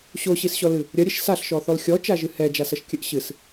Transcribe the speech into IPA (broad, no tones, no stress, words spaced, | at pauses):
ɕoɕisɕɔlɨ | ɾʲɐɾʲɛʃ saɬʃɔθɔl xʲɔt͡ʃaʒɨ hɛd͡ʒasɐʃkʲɘʔ ɕɨs